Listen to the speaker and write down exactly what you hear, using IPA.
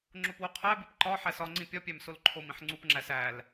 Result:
ŋ͡ǁ o p w o qʰ æ b i p ǃ ɒ ħ æ s ɒ ŋ͡ǀ ĩ pʲ ɒ pʲ æ m s o l ǃʰ o m ĩ ħ ŋ͡ǀ u p ŋ͡ǁ æ s æ l

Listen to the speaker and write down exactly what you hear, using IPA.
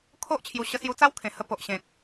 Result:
kʰ o˦ ʔ t͡ɕʰ j u˨˩ ɕ ə˧ s j u˧ t͡s a˦ w kʰ ẽ˨˩ h ə˧ p o˨ ʔ ɕ ẽ˨ k̚

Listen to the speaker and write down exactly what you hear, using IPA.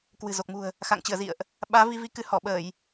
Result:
k w ɨ̤˨˩ z o˨˩ k̚ m ṳ˨˩ ə̯ | x a̰˧˨ ŋ t͡ɕ ɨ˧˩ ə̯ z ḭ˧˨ ə̯ ʔ | ɓ aː˨˦ v i˧ v i˨˦ k ɨ˨˦ h ɔ˧˩ ɓ əː˧˩˨ j

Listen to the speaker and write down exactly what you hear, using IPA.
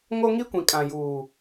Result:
ŋ o˦ ŋ i˦ kʷ ĩ˨ kʼ ã˨ j uː˨

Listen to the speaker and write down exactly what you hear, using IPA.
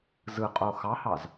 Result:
z ɯ qʼ o x ɑ h ɑ z

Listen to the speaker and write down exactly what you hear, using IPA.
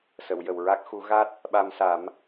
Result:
s ə˨˩˨ w j ə˨˩ w ɹ a˦˥ k̚ x u˨˩˦ ɣ a˦˥ t̚ | ɓ a˧ m s a˨˩˦ m

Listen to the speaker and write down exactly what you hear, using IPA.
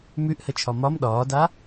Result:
m ʉ ʔ h ə t͡ʃʰ ɒ m ɒ m ɗ ɒː d a

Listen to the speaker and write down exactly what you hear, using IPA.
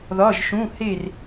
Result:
ð ɒ˧˥˧ ʒ ʃ ũ˧˥˧ h e˥˨ r

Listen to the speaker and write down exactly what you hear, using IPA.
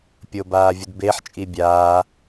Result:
pʲ o b aː vʲ u d b e ħ t͡ʃʼ i bʲ aː

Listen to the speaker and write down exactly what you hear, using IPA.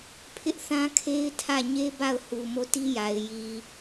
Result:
pʰ ɪ˦ ʔ θ ã˦ kʰ e˦ ɪ̯ tʰ ä˦˨ ɲ e˦ b a˦˨ ʊ̯ h u˨ m o˦˨ t i˦ j a˨ ɪ̯ j i˨

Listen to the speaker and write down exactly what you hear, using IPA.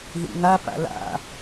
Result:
ð ḭ ŋ a p a̰ l a̰

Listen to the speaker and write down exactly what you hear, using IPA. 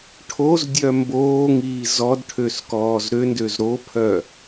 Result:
ʈʰ o z dʲ œ m b oː ŋ iː z ɔ d ʈʰ ø s k ɔː z ɾ ø n d ø z ɾ o pʰ œ

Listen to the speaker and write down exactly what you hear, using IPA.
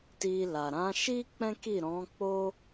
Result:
t i˧ l a˨ ɾ ã˨˦ ʃ i˦ k͡p ɛ̃˦ k i˦˨ ɾ ɔ̃˨˦ k͡p o˦

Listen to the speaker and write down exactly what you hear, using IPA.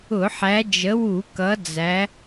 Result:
ʊ˧˩˧ ħ æ˨˦ d͡ʒ ə˨˦ w u˧˩˧ k ʌ˨˦ d͡z æ˨˦

